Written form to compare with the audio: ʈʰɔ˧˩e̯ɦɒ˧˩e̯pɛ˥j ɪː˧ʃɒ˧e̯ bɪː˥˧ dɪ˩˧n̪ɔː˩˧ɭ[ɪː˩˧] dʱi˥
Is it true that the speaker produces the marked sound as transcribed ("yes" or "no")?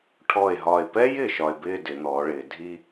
yes